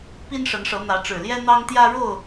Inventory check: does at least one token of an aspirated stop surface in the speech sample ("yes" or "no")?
no